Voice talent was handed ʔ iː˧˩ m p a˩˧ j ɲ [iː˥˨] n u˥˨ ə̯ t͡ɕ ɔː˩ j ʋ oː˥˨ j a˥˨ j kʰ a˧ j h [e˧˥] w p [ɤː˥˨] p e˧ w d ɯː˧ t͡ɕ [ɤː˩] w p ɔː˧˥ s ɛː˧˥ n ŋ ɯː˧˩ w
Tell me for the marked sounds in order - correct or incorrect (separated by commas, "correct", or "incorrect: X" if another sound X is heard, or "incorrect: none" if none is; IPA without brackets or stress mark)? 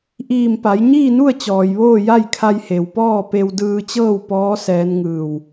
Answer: correct, incorrect: e˩, incorrect: ɔː˥˨, incorrect: ɤː˥˨